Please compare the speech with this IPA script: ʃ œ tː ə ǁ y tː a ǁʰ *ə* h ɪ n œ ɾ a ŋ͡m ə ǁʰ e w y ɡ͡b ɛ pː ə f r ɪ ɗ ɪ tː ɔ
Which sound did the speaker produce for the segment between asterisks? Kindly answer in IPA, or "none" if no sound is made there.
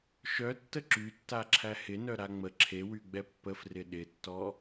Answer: æ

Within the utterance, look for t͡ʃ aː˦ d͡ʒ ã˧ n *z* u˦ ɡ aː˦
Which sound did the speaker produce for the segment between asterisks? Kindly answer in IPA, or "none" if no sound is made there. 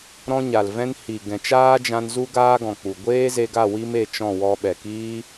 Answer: z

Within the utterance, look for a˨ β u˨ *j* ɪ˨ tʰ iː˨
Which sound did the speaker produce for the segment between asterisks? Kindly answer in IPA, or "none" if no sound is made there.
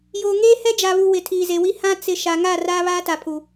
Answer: w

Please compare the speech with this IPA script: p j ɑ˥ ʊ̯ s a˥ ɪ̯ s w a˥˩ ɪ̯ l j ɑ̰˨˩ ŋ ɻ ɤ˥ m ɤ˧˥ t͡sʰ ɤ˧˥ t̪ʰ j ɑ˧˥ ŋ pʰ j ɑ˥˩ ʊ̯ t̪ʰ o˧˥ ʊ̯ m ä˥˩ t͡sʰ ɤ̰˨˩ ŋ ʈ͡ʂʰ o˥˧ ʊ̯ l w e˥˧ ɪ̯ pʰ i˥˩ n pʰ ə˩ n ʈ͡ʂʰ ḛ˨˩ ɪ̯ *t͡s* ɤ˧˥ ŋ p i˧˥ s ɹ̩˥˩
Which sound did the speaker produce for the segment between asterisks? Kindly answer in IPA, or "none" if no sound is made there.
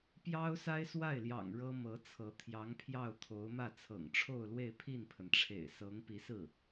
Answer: s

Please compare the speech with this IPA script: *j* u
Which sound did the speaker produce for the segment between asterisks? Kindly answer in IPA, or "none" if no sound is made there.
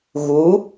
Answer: ɣ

